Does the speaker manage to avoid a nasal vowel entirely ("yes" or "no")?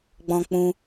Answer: no